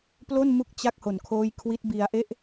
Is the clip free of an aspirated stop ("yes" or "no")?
no